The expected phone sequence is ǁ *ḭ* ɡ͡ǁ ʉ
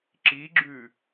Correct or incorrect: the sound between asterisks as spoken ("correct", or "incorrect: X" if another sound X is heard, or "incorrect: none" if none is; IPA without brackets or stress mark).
incorrect: i